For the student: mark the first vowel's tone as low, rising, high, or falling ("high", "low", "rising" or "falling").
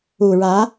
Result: low